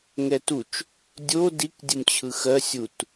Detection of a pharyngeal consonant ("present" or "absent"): absent